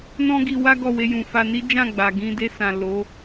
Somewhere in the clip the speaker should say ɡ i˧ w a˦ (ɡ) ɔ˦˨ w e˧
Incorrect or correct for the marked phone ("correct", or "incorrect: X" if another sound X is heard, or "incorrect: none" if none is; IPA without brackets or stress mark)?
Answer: correct